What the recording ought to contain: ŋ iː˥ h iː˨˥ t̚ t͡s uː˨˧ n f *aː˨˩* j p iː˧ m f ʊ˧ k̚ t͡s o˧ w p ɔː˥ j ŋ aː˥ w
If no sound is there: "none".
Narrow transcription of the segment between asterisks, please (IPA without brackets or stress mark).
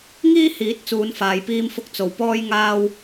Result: aː˨